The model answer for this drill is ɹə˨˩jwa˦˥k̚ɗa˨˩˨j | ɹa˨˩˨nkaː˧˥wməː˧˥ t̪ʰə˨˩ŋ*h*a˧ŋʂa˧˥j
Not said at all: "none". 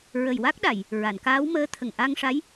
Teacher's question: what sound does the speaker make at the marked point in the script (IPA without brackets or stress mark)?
ʔ